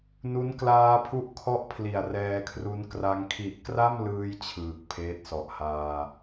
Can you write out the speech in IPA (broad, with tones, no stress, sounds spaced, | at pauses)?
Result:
n u˦˥ n k l aː˧ pʰ u˦˥ ʔ kʰ ɔ˦˥ ʔ pʰ l i˨˩ a̯ r ɛː˧ kʰ r u˦˥ n k r a˧ ŋ kʰ i˨˩ ʔ k r a˥˩ m l ɯː˧ j t͡ɕʰ ɯː˨˩ k̚ pʰ eː˦˥ t̚ s ɔ˨˩ ʔ h aː˧